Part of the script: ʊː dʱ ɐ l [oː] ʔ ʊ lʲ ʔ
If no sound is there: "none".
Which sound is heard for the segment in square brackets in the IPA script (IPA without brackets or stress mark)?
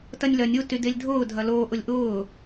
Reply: oː